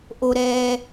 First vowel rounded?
yes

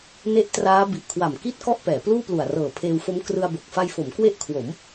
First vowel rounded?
no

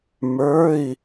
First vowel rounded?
no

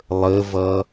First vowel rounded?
no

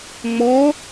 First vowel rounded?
yes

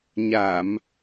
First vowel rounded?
no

